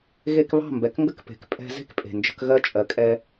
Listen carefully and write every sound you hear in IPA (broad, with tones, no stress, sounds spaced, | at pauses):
ɣ e˧ k β ɑ̤˦˨ m b ɛ˨ k ŋ ɡ ə˦ k p e̤˨ k pʼ ɛ̤˧ z e̤˦ k pʼ e̤˨ n d͡ʒ ə̤˧ k ɣ ɜ˧ t͡ʃʼ ɜ˨ kʼ ɛ˧